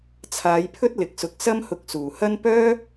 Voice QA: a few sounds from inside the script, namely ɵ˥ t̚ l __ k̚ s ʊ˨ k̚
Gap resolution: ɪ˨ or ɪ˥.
ɪ˨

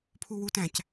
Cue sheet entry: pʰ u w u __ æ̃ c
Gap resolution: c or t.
t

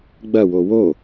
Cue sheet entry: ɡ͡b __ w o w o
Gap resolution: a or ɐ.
ɐ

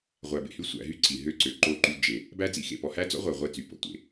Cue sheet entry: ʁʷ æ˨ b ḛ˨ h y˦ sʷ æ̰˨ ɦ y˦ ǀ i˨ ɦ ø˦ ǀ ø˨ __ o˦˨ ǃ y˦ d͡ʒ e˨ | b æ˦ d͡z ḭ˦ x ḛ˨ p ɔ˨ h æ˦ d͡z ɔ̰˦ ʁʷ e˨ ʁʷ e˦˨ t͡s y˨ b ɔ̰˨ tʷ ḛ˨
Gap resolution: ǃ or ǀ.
ǃ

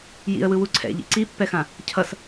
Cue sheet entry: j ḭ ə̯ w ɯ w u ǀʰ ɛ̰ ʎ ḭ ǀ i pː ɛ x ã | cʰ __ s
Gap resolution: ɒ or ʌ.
ʌ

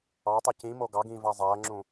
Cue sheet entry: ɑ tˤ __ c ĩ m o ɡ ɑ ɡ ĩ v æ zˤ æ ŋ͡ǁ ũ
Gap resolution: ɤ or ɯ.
ɯ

